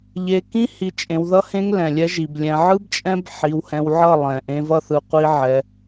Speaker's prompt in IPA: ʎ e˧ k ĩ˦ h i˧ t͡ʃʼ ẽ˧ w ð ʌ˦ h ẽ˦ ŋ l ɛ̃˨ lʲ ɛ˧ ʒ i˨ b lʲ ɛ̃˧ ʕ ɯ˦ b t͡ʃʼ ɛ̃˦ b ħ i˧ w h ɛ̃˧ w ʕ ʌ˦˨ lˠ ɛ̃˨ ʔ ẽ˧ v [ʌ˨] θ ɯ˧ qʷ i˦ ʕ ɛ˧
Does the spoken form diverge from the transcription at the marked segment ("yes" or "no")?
yes